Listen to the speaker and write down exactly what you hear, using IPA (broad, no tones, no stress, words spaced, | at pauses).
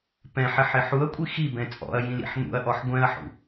pɛ̃ħɪħɪ ħuɐ̯kʷʼi xibɛ̃ t͡sʼɔ̰ɐ̯jĩlḭħ n̪ṵɐ̯ʔɔħ ɡʷɛ̃ɐ̯ħṵ